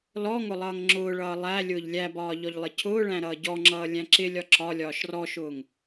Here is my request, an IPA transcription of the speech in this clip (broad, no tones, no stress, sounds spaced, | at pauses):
l ɔ ŋ ʊ lˠ ʌː ŋ ŋ͡ǁ ʊː ɭ ʌː lˠ æ lʲ ʊː ʎ lʲ æ b ɒː ʎ ɔ ʎ lˠ ɪ cʰ ʊː ɭ æ̃ ɾ ʌː ɟ ɔ ŋ͡ǁ ʌː lʲ æ̃ ǁ ɪ lʲ ɒ ǁ ɒ lʲ ɒː ʃ r ɔ ʃ ʊː ŋ